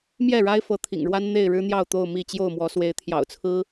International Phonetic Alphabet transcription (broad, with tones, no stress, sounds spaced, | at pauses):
m j ɛ˥˨ ɻ a˦ ɪ̯ f ɤ˨˦ t̪ʰ ḭ˨˩ ŋ ɻ w a˦ n n̪ e˥˨ ɪ̯ ɻ ɻ̩˦ n̪ j ɑ˥˨ ʊ̯ t̪ o˥˨ ʊ̯ m i˥˨ t͡ɕ j o˥˨ ʊ̯ m w ɔ˨˦ s w e˨˦ ɪ̯ t̪ʰ j ɑ̰˨˩ ʊ̯ t͡sʰ ɹ̩˦